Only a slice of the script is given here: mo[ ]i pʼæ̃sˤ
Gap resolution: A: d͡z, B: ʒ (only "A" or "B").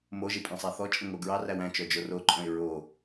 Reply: B